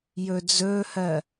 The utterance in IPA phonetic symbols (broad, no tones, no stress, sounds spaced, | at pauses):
j ɵ d͡z ɵː h ɜ